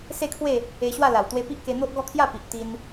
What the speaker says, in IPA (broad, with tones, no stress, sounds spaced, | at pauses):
s e˥˧ kʰ w e˥˧ | e˧ ɕ w a˥˧ l a˨˩ w t̪ w e˧ p i˦ ʔ k e˧ n̪ o˦ ʔ ɡ ɔ˥˧ kʰ j a˥˧ p i˨ ʔ t̪ i˧ n